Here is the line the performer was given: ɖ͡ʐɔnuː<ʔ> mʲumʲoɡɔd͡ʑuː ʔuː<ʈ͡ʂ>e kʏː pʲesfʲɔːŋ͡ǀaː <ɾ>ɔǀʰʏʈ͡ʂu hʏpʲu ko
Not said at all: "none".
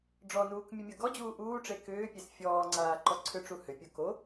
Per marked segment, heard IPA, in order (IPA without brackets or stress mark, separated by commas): k, ʈ͡ʂ, ǃ